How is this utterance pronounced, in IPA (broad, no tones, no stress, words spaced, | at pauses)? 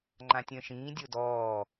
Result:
ŋ͡ǃãtʲə̃ːʃĩːdʲo dɔː